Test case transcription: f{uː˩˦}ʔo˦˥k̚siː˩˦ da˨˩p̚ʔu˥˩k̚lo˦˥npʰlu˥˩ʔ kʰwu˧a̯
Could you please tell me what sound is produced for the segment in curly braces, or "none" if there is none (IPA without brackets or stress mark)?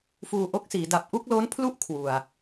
uː˧